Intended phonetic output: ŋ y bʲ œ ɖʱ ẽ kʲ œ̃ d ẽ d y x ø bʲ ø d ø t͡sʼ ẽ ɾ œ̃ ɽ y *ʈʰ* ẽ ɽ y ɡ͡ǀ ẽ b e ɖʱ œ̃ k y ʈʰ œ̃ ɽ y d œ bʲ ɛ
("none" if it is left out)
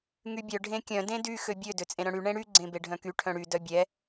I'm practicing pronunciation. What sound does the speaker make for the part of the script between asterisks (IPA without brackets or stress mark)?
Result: ɳ